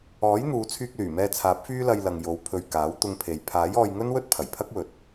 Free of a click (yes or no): yes